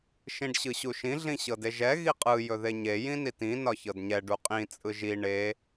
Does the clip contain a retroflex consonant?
yes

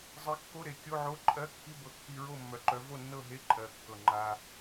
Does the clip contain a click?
yes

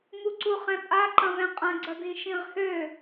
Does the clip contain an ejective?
yes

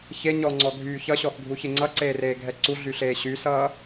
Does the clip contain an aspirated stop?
no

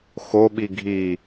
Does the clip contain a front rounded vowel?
no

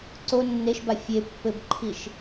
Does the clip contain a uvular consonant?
no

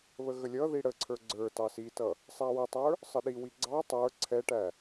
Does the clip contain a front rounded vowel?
no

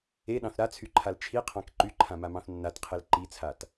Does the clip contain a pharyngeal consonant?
no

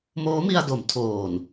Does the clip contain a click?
no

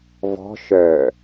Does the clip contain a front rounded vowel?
yes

